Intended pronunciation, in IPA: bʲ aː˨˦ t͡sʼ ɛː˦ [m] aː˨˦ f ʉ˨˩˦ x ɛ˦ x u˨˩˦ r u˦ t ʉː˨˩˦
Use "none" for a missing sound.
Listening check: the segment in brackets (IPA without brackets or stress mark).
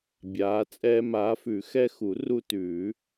m